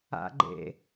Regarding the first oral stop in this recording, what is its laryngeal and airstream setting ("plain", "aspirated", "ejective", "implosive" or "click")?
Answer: click